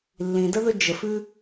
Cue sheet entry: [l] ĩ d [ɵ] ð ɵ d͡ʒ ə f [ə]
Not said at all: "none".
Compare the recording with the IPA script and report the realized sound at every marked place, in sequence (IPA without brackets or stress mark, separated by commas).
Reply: lː, ə, ʉ